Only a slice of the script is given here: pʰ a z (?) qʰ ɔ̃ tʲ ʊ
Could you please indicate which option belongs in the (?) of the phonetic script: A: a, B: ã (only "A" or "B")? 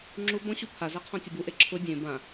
A